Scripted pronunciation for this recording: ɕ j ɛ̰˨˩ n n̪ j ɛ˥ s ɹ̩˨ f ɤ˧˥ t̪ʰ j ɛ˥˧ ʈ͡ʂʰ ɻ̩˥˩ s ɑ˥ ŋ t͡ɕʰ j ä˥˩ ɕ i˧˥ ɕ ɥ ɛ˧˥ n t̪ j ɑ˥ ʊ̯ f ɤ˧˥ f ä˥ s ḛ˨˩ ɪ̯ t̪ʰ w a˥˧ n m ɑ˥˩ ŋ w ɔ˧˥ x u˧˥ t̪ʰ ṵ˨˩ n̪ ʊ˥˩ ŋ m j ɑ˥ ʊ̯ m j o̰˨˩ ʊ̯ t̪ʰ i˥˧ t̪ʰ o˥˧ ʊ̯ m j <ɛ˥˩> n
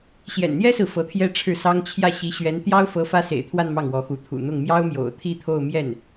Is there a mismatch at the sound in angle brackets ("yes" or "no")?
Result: no